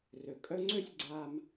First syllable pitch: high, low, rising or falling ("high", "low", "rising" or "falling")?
low